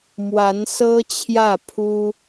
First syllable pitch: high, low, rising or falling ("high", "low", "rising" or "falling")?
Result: rising